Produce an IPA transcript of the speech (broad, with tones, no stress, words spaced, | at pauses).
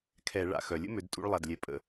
kʰɛ˧˩˧ ɭa̰˩ xœ˩ lʲə̰˥mø˩˧d tʼṵ˥ɭlˠa˩˧˩dlʲɛ˩˧ pʼə̰˧˩˧